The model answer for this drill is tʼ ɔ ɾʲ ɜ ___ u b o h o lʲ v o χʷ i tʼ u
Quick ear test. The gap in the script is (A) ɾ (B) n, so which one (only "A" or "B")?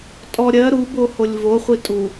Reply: A